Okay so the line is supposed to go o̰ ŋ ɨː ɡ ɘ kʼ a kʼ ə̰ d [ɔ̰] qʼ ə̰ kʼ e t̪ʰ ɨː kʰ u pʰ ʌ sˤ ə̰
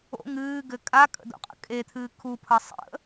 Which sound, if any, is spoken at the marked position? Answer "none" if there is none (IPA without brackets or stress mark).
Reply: o̰